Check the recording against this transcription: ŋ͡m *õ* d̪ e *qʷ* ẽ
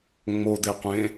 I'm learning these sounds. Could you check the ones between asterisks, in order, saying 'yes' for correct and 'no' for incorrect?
no, yes

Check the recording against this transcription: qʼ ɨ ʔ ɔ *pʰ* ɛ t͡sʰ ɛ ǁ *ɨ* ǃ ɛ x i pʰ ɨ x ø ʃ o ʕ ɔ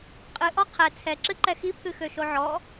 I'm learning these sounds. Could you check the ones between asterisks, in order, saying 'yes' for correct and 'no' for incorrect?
no, yes

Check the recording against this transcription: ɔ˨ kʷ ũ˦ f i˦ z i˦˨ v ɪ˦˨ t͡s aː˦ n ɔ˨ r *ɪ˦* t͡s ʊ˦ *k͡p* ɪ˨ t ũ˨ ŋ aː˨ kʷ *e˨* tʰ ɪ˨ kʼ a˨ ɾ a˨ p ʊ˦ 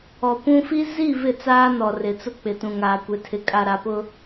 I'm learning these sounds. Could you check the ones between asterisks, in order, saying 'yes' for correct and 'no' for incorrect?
no, yes, yes

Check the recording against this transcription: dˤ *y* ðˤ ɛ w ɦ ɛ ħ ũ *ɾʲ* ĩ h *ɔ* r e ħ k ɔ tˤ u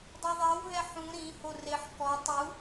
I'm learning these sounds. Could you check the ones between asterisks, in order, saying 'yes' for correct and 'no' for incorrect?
no, no, no

